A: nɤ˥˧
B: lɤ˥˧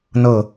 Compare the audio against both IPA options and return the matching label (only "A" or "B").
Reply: A